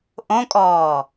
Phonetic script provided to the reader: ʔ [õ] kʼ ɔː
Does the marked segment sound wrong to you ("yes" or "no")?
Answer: no